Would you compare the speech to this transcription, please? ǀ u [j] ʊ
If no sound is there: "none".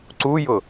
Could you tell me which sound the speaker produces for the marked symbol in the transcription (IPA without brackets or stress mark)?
j